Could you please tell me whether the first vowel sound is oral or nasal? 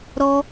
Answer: oral